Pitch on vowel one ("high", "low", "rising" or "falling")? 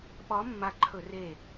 rising